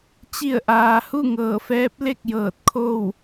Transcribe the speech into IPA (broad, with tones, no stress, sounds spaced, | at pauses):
t͡ɕ i˧˩ ə̯ ʔ aː˩ h u˥˨ ŋ ɤː˧˩ f ɛː˧˥ p̚ l e˥˨ k̚ j ɤː˧˩ t̚ kʰ o˥˨ w